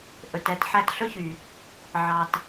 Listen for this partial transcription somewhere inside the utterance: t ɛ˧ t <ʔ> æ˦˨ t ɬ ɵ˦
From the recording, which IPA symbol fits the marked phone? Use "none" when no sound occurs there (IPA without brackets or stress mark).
ħ